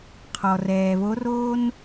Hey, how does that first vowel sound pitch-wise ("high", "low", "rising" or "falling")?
low